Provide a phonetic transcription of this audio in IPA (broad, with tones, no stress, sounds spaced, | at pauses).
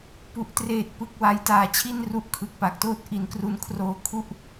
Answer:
p u˨˩ ʔ t r eː˨˩ t̚ p ɯ˨˩ k̚ w a˧ j t aː˨˩ t͡ɕʰ i˥˩ n r u˦˥ ʔ kʰ ɯ˨˩ k̚ p a˨˩ k̚ t oː˥˩ t̚ ʔ i˨˩ n k r u˦˥ n kʰ r oː˧ kʰ u˥˩ ʔ